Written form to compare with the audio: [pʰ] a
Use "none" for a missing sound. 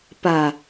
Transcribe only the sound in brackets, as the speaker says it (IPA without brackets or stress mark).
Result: p